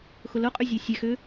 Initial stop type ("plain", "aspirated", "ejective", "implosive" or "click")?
ejective